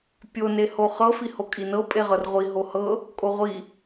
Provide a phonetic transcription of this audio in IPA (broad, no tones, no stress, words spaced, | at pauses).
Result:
pʲo nehoχɤ fihokʼinɤ pʼeʁɤrʁʷi ɦohɤ | kʼoʁʷi